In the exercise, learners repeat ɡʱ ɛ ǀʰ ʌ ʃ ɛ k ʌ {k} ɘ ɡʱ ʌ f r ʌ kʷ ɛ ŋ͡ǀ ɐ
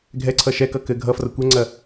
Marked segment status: correct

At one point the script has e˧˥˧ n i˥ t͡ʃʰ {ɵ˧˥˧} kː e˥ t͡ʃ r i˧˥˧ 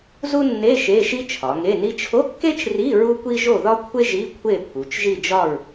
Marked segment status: incorrect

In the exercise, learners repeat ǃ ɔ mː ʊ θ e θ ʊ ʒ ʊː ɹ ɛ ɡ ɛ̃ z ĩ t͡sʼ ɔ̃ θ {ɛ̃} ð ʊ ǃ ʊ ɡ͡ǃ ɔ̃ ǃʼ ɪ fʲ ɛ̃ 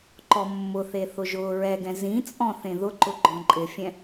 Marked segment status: incorrect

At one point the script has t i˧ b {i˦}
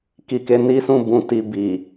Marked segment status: incorrect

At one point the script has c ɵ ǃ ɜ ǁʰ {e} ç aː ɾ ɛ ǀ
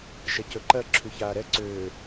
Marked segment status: incorrect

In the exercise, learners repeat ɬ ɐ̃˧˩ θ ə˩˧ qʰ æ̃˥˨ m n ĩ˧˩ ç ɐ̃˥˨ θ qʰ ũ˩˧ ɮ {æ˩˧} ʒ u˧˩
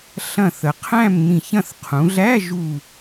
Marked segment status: incorrect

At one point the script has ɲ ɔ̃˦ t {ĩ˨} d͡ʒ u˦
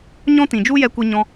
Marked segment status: correct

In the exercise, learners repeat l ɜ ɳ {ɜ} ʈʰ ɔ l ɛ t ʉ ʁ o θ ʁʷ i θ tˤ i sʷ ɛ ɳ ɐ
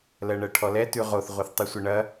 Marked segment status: correct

